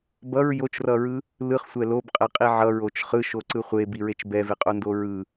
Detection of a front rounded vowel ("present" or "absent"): absent